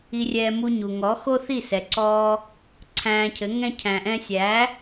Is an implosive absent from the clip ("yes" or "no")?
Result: yes